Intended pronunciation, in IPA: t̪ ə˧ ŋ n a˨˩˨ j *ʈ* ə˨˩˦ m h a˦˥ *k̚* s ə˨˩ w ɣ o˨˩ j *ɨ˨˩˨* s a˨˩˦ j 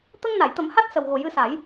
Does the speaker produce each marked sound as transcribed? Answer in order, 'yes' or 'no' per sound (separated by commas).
no, no, no